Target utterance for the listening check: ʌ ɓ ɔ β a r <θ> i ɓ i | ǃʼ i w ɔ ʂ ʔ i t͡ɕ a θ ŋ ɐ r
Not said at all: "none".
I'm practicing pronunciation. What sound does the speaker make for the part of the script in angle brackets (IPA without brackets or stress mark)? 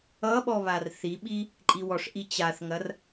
θ